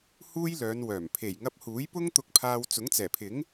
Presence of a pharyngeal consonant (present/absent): absent